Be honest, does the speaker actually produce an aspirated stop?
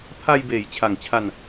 yes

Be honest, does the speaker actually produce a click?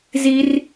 no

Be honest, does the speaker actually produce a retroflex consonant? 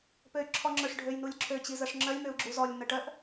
yes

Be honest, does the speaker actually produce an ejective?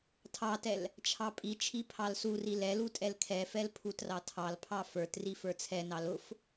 yes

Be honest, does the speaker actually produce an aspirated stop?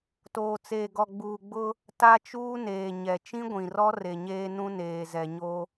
no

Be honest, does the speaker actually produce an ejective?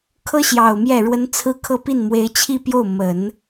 no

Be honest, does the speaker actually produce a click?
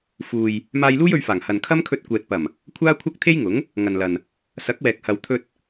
no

